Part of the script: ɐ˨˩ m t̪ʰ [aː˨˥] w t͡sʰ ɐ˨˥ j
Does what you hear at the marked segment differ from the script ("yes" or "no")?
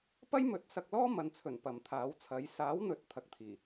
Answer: no